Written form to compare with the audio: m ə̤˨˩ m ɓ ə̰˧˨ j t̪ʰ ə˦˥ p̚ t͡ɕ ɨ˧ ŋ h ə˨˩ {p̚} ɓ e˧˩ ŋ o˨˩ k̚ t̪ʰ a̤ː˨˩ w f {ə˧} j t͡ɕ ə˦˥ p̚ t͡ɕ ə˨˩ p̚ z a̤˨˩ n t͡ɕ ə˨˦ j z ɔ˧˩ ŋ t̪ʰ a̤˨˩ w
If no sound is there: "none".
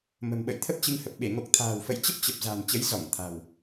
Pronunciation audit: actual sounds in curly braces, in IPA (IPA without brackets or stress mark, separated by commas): p̚, ə̰˧˨